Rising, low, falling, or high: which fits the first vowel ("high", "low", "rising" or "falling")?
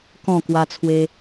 falling